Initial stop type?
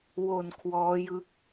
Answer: aspirated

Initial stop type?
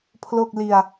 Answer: aspirated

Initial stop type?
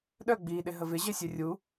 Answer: implosive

